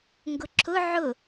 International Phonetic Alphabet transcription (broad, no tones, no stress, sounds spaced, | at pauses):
ŋ ɡ ʊ ǁʰ ʊ ʕ ʊ